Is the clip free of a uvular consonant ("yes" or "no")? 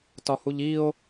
yes